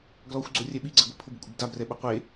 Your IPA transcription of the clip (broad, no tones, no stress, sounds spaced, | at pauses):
ɡ l ɔ xʷ ɡ͡ǀ o rʲ ɛ ɓ i ɡ͡ǀ ɛ ɡʷ i pʰ ʊ b ɪ kʷʼ ɪ b d a b r ɛ ɓ ʊ qʷ e